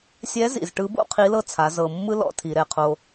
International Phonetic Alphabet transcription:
sʲ ɛ˧˥ z ḭ˩ z ʈ ɯ˧˥ b o̰˥ qʰ i˧˥ l ɤ˥ t͡sʰ a˩˧ z ɤ˩ mː ɯ˥ l ɔ̰˧˥ tʰ i˩˧ ɾ ɛ˩ qʰ o˧

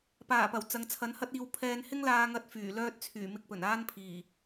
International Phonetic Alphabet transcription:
p aː˨˩ p ɐ˨˩ w t͡s ɐ˨ ŋ t͡sʰ ɐ˨˥ n h ɐ˥ t̚ iː˧ w pʰ ɛː˧ n h ɪ˥ ŋ l aː˧ ŋ ɐ˧ t̚ f yː˨˩ l œː˥ t̚ t͡sʰ yː˨˩ m ɪ˧ k̚ p ɵ˨˩ n aː˥ n pʰ iː˨˩

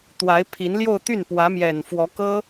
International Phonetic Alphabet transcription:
t̪ w a˧˥ ɪ̯ pʰ i˧˥ n l j o˥˧ ʊ̯ t̪ y˥˩ n p w ä˧˥ m j ɛ˨˩ n f w ɔ˧˥ k ɤ˥

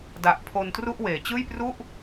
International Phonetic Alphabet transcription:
d a˨˩ ʔ pʰ o˧ n t r u˥˩ ʔ w eː˨˩ t͡ɕ ɯː˥˩ j p r u˥˩ ʔ

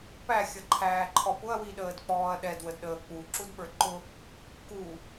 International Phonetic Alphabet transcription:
p æ xʲ ʌ ǃʰ æː ǃʰ ɔ p ʊ ɐ̯ w i ɗ əː d k͡p ɔː ɐ̯ ɗ ɛ d w ə d ɗ əː k͡p u ǁ u d ɓ ə˞ ǃ ʊ | k u

